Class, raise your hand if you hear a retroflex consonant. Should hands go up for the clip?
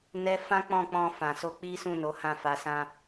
no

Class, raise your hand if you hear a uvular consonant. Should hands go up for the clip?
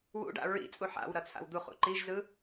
yes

